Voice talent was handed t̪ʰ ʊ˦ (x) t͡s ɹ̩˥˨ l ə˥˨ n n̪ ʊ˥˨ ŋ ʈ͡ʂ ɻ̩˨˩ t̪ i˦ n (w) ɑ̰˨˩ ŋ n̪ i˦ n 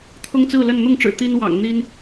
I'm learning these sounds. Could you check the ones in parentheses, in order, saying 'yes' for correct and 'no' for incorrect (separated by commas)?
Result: no, yes